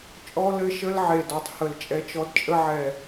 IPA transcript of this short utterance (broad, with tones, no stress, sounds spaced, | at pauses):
t͡ʃʼ ɔ˦ l ɘ˦ ʃ ə˦ l ʕ e˨˩ d ɔ˨˩ tˤ h ə˨˩ l t͡ʃʼ ɛ˦ t͡ʃ ɔ˦ d t͡ʃʼ ə˦ ʕ ɛ˨˩